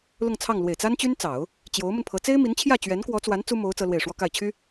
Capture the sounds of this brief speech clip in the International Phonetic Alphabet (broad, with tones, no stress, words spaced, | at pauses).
lʊ˥˧ŋt͡sʰɑ˥˩ŋ lwe˨˩ɪ̯t͡sa˥nt͡ɕy˥nt͡sɑ˨˩˦ʊ̯ | t͡ɕjo˧˥ʊ̯mə˧npʰɤ˧˥ t͡se˥ɪ̯mi˧˥nt͡ɕʰjä˥˩ t͡ɕɥɛ˧˥nkwɔ˧˥t͡swa˧˥n t͡su˥mo˧˥ʊ̯ t͡sɤ˥lwe˥˩ɪ̯ ʂwɔ˥ka˥˩ɪ̯t͡ɕʰy˥